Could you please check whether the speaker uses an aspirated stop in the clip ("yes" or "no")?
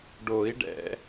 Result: no